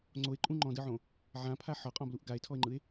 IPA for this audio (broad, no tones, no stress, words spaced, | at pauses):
ŋ͡ǀoe̯ǃʼũ ŋ͡ǃɔ̃dɯʕõ | ʕãpʰa ħɒqʼɔ̃bluʔ ɡae̯tʰɔe̯ŋ͡ǃɯe̯